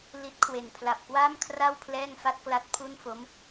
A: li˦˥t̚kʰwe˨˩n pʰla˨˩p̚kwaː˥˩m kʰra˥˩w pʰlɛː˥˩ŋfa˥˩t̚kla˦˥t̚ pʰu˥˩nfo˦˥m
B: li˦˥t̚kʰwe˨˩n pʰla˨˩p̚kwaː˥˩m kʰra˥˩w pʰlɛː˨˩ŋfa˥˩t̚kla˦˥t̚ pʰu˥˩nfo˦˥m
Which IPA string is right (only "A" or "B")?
A